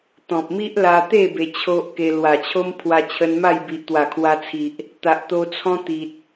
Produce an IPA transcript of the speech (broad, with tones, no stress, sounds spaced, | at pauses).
t̪ ɔ̃˨ p̚ m i˦ ʔ l a˧ t̪ e˥˧ b e˧ t͡ɕʰ o˦ ʔ k e˧ l w a˨˩ t͡ɕʰ o˦ m pʰ w a˧ t͡ɕʰ ə˧ n m a˥˧ j b i˨ ʔ t̪ w a˨˩ kʰ w a˧ t͡sʰ i˨ ʔ | t̪ a˨ ʔ t̪ o˧ t͡sʰ ɔ̃˦ t̪ i˨ t̚